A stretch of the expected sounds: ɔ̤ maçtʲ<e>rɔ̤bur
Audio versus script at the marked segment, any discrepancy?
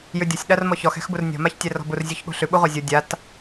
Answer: yes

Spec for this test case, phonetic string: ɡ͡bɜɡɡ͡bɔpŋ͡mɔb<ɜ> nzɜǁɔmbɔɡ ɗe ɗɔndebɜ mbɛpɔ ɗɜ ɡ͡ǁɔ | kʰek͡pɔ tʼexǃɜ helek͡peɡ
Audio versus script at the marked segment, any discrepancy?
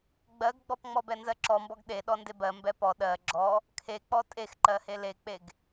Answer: yes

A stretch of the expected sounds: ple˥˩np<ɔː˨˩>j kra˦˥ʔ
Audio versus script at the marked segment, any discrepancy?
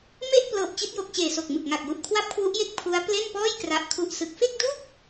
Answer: yes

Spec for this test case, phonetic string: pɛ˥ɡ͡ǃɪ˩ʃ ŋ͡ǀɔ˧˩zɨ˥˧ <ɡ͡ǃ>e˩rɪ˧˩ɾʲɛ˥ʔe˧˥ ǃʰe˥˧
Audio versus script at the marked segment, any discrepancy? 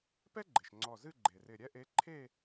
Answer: no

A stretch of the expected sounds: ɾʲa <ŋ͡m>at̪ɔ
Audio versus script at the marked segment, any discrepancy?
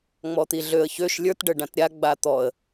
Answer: yes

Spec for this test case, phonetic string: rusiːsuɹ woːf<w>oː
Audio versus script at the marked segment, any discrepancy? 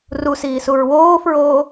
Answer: yes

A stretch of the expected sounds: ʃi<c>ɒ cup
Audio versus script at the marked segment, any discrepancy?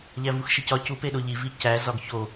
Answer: no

